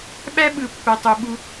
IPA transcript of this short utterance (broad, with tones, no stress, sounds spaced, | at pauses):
ɓ æ˦ ɓ ɯ˧ pː æ˧ tˤ o˧ ɓ u˦